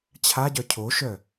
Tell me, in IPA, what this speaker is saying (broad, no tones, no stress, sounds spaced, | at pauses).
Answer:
t͡ɕʰ a ɟ œ cʰ o ʃ œ